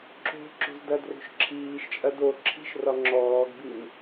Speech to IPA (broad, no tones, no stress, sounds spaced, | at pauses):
ǁ o̤ ǁ o̤ z d ɐ d r o̤ ʃ ǁʰ iː ʃ t͡ʃʼ ɐ d o ǁʰ i̤ ʃ r ɒ ŋ͡ǁ ɔː ɡ b i n